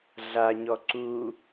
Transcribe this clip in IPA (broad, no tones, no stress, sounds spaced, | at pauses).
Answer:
ɮ a ɲ ɔ ǀ u